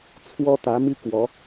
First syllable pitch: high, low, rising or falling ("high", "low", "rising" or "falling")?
high